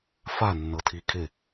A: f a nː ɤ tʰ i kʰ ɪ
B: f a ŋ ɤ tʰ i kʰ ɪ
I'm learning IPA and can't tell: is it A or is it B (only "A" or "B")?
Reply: A